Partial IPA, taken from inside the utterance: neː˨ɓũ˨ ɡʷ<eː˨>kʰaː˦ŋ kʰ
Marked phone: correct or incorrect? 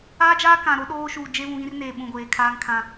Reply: correct